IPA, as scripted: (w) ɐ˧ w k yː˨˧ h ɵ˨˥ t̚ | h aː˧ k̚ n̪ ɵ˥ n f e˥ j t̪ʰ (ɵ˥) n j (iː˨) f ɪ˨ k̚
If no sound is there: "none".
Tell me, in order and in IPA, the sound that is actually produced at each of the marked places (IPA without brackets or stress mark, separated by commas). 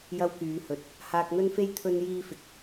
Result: j, ɵ˧, iː˧